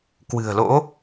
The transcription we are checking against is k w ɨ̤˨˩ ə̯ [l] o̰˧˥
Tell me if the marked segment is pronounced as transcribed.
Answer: yes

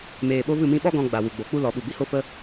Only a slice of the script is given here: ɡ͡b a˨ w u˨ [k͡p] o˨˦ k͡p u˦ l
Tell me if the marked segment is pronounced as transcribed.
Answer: no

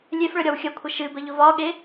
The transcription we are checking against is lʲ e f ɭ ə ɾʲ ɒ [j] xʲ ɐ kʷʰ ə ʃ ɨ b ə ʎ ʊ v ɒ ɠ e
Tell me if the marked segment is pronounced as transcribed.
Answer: no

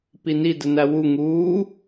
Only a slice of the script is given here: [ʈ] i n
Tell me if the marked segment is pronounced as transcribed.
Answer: no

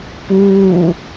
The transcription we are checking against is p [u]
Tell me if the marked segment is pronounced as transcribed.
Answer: yes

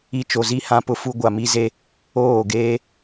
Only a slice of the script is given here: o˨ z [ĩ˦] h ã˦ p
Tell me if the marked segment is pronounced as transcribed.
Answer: no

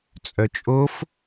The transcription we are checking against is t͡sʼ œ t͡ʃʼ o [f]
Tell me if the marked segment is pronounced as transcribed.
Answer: yes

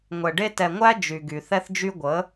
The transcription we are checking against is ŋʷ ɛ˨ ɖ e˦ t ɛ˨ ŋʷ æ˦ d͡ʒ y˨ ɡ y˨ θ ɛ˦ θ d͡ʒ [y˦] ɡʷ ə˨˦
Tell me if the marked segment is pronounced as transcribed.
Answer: yes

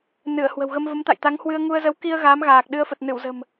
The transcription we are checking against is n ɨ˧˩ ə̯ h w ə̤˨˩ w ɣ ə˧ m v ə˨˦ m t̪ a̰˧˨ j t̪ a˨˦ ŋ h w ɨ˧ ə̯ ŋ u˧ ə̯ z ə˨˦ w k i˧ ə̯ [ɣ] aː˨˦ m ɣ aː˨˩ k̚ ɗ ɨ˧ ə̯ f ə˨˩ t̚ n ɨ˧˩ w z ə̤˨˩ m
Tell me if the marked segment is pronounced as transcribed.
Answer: yes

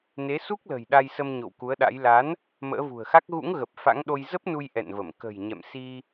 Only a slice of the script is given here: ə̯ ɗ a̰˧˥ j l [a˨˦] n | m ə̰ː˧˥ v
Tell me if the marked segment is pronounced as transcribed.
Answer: yes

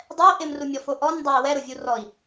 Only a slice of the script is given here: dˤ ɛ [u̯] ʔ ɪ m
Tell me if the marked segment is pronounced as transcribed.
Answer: no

